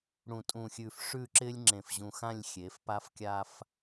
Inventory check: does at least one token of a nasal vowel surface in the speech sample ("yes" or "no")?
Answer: yes